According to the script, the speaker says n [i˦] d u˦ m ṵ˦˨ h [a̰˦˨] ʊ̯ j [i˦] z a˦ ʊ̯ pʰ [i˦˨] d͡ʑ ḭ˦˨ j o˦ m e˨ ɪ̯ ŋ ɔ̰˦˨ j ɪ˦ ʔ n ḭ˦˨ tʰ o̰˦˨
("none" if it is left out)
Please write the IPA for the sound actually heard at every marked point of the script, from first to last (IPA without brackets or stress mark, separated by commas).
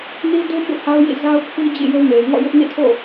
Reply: i˦, a˦, ḭ˦˨, i˦